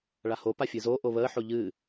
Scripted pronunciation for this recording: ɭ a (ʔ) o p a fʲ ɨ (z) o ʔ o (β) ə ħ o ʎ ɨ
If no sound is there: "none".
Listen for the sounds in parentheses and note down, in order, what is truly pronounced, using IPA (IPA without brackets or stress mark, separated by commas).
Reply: h, z, β